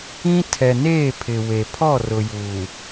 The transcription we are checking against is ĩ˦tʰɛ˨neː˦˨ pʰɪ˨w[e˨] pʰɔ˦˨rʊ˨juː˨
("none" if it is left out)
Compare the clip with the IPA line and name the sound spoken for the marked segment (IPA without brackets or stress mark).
e˨